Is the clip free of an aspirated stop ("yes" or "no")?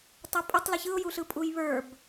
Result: yes